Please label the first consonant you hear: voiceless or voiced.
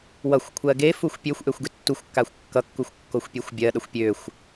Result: voiced